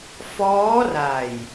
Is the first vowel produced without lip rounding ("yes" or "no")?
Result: no